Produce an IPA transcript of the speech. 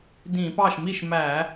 d ĩ˧˩˧ p ɑ˥˩ ʃ m i˥˩ ʃ m æ˧˩˧

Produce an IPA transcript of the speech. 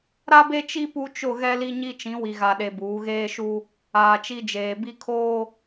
ɾ a˦ b e˦ t͡ʃ i˦ p u˦ t͡ʃ ʊ˦˨ ɣ ɛ˦ l i˦ ɲ i˦ t͡ʃ ĩ˨˦ w i˨ ɣ a˨ ɗ e˨ b uː˨˦ ɣ eː˦ ʃ u˦ | aː˨ t͡ʃ i˦ d͡ʒ eː˨ b i˦ kʰ oː˦

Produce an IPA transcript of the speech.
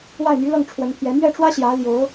w a˥˩ ɪ̯ m y˧˥ l ɤ˥˩ ŋ ʈ͡ʂʰ w ə˧˥ n pʰ j ɛ˧˥ m ɥ ɛ˥˩ ʈ͡ʂ w ä˥ ɕ j ä˧˥ l j o˧˥ ʊ̯

